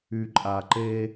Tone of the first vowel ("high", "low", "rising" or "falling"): low